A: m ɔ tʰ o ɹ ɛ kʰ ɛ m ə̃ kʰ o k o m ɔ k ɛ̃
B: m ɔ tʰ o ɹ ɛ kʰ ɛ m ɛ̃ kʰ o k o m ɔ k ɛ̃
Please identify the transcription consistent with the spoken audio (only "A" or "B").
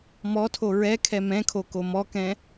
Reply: B